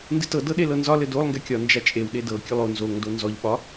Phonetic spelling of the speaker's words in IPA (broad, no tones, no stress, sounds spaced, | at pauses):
n d ɨ t ɤ d ɤ ɗ e l ɤ n z ɒ l ɘ d o lˠ ŋ ɡ ɛ kʲ ɒ n d͡ʒ a t͡ʃʼ e w ɗ e d ɤ kʲ ɨ lˠ o n z o ŋ d o n z ɔ ʎ ɓ ɒ